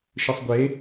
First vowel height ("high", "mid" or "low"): high